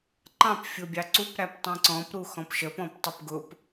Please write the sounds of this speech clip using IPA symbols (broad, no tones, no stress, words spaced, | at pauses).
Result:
ǃɑ̃p fʲʊbʲɑǀup ɾæptˤĩǀɔ̃p ɾuxɔ̃pʃə pɔ̃ptˤupɡʊp